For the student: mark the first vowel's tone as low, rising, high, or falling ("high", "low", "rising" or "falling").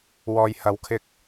low